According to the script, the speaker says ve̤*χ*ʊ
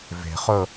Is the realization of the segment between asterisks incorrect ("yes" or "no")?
no